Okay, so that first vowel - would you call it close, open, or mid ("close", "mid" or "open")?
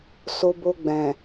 mid